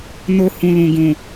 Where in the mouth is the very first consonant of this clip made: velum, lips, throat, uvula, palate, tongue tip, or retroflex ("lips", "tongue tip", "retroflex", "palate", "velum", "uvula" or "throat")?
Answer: tongue tip